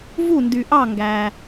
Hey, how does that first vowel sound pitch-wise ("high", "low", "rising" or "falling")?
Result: falling